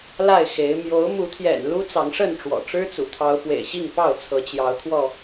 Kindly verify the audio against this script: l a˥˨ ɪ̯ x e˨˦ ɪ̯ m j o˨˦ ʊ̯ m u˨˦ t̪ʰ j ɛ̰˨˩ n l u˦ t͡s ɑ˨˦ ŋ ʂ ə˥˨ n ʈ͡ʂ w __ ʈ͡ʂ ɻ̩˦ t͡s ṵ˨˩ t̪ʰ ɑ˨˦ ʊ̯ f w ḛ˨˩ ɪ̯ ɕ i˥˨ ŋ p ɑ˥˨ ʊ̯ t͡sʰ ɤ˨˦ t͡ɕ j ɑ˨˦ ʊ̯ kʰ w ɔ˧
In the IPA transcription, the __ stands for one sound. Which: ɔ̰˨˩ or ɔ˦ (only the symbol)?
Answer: ɔ̰˨˩